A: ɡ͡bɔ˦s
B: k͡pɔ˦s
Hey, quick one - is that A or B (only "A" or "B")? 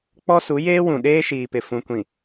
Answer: B